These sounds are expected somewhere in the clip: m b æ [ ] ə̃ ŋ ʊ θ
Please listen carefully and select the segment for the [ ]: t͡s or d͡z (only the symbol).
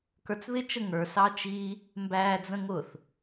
d͡z